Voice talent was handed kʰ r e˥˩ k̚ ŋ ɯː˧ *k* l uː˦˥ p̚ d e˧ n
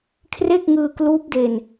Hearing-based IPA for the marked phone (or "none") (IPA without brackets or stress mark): k